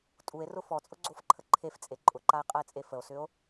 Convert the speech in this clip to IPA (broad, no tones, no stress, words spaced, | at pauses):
tʼue̯rʊ fɔt͡sʼʊɡ͡ǀofǃʰə ǃʰeft͡sʼe ǃʼʊǃae̯qʼəe̯t͡sʼe fəo̯sʏo̯